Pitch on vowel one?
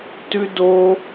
high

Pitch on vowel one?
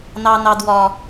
high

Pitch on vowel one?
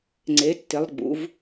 rising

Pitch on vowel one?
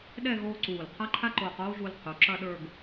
falling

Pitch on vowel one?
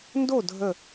falling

